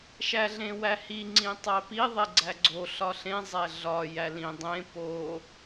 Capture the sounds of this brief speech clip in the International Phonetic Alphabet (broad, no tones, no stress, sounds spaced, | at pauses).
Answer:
ʃ æ ɮ ẽ w æ h i ŋ͡ǀ ĩ tˤ æ p i ðˤ e ɡ͡ǀ æ ɡ͡ǀ o ɬ ɒ ɬ ẽ zˤ æ ɮ ɒ j æ l ĩ dˤ ẽ p o